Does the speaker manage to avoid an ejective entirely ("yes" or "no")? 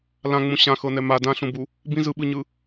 yes